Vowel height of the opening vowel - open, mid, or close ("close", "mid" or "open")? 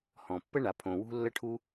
mid